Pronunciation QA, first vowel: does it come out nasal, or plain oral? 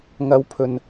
oral